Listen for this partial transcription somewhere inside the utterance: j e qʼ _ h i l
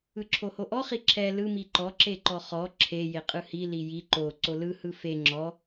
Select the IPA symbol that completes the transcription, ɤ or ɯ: ɯ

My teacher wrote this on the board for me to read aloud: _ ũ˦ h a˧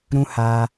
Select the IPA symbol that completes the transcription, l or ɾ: ɾ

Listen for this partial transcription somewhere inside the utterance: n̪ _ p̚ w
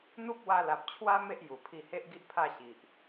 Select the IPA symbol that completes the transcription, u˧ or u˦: u˦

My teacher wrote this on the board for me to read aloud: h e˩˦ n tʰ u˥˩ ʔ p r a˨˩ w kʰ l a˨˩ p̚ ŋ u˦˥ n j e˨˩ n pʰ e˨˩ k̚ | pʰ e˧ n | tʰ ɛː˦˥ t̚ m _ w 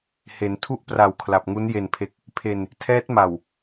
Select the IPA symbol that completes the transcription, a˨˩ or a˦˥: a˨˩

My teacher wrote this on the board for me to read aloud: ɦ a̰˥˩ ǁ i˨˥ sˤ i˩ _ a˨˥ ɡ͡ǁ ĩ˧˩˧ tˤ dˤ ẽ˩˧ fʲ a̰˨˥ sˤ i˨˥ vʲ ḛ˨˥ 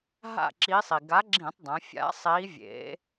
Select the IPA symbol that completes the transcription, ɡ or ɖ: ɡ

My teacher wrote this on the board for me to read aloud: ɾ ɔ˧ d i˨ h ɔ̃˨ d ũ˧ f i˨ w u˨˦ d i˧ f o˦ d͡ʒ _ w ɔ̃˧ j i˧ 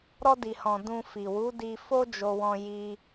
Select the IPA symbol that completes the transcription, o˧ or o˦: o˧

